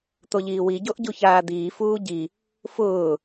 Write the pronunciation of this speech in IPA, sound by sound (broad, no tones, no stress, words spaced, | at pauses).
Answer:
t̪oʎiːwi ɟoʔɟuçaːd̪iː fuːɟi | fʊː